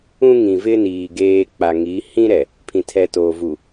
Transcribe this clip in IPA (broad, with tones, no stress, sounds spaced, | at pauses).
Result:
ũ˦ ŋ ĩ˨ v ɪ˦ n iː˨ ɡ eː˨ k͡p a˨ ŋ i˨˦ h ĩ˦ ɾ ɛ˨ | pʰ ĩ˨ tʰ ɛ˨ t oː˨ v u˨